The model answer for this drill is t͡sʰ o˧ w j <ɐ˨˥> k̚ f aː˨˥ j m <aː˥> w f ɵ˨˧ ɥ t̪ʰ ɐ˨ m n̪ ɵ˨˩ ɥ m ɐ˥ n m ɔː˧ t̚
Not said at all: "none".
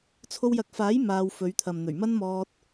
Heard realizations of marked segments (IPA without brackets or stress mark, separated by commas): ɐ˨˥, aː˧